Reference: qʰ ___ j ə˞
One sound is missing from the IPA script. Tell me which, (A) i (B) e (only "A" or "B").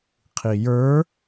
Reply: A